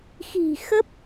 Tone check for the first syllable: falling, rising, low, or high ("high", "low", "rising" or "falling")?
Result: low